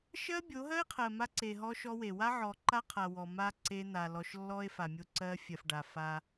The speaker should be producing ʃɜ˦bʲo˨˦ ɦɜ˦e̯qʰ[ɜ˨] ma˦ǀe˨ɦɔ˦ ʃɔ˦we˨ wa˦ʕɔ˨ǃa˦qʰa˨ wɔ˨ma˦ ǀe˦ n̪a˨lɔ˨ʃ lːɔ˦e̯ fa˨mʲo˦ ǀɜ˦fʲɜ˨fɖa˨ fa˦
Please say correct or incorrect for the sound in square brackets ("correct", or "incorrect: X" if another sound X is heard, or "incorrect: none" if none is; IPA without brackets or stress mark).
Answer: correct